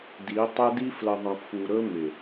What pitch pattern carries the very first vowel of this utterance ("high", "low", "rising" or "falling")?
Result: rising